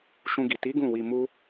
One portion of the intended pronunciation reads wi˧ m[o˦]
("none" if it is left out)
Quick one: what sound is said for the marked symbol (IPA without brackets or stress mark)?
u˦